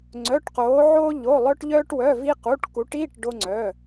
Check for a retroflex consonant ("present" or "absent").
present